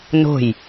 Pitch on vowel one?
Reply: falling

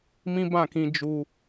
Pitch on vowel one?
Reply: high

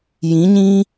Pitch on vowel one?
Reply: rising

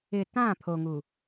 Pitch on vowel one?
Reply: low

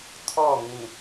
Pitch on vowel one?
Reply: falling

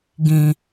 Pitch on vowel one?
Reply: low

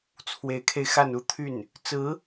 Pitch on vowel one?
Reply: rising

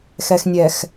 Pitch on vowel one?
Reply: low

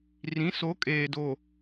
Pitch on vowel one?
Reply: rising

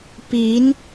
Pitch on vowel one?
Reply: rising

